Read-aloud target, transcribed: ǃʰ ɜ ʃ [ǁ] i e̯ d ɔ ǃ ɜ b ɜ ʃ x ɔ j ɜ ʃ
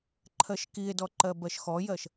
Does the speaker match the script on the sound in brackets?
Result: no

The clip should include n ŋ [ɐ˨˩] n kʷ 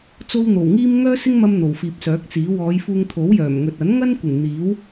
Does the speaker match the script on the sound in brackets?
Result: no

